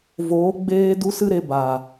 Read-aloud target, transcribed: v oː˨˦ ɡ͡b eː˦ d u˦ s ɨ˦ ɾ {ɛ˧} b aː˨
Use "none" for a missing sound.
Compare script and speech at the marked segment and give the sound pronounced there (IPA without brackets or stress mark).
e˧